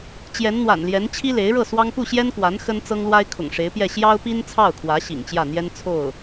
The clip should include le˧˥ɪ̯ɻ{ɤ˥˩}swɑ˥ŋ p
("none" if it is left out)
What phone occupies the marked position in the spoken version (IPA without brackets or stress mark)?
ɤ˥˩